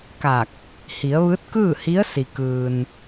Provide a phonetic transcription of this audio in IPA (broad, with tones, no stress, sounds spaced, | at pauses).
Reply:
k a˧˩ k̚ | h i˩˧ ə̯ ʋ ɯː˧˥ t̚ k ɯː˥˨ h i˧˥ ə̯ s i˩ k ɯː˩ n